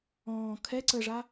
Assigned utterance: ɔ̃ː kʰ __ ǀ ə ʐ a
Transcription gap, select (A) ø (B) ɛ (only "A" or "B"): B